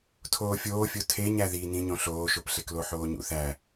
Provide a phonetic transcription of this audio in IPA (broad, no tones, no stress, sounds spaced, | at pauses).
tʰ oː fʲ oː fʲ o tʰ e ɲ æ ð i n ĩ ɲ õ ɬ oː ʃ o p ɬ e k l o ħ oː ɲ ṵ θ æ